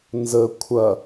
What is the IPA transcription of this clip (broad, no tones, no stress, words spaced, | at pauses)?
nzə kʷʰɐ